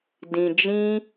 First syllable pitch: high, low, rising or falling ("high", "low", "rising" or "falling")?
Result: low